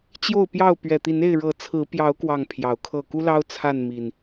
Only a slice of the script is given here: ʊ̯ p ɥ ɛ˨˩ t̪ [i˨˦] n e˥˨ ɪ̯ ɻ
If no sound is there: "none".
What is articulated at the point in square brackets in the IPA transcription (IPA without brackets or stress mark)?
i˨˦